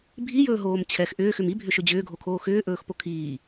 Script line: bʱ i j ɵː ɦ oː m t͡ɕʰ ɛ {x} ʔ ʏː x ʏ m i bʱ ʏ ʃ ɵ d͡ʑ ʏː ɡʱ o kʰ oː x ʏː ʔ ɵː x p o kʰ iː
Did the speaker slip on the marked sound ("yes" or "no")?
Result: no